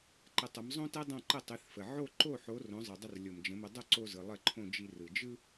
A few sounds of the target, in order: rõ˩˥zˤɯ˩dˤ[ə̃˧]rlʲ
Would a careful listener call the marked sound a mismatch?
yes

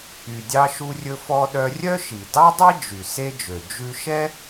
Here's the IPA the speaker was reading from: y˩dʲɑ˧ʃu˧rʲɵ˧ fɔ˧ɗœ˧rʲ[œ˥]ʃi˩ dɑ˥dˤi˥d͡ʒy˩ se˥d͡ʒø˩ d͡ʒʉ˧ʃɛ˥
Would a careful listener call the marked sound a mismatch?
no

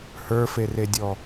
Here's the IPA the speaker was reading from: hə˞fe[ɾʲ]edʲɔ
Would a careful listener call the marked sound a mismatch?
yes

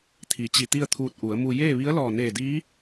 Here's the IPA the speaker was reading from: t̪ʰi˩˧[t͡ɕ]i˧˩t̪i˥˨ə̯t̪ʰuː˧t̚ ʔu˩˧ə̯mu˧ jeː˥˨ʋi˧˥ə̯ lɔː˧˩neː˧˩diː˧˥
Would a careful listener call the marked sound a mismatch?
no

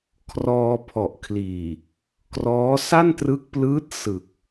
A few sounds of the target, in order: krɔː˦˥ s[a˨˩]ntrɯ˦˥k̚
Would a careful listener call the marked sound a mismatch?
yes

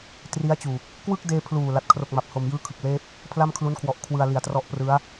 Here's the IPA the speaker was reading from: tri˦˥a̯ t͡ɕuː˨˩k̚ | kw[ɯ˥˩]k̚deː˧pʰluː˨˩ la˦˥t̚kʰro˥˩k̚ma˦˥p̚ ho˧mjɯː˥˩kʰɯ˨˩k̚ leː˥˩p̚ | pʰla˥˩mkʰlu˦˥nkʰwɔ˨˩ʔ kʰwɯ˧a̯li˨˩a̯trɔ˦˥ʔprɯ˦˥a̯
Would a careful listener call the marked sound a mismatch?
no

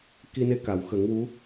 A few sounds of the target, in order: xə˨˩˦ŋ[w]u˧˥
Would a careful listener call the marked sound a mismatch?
no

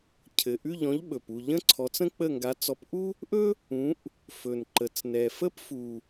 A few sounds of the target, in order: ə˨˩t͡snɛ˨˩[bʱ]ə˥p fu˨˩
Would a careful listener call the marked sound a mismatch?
yes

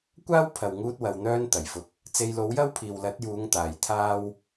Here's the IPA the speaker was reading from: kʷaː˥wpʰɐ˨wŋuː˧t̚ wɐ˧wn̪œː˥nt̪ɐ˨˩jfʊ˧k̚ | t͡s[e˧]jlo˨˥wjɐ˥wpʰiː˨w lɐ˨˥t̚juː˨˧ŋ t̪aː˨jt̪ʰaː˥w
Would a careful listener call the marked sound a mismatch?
no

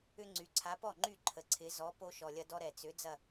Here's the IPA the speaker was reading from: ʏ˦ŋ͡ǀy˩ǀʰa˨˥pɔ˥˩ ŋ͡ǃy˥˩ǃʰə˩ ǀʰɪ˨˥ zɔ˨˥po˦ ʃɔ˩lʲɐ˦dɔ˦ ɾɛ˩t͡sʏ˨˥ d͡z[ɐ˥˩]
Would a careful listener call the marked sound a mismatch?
no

